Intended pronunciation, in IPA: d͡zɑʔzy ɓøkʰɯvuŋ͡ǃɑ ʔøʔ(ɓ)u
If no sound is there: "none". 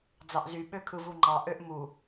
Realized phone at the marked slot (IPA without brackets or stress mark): m